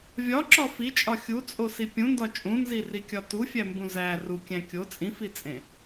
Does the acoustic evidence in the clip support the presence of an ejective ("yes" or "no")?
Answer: yes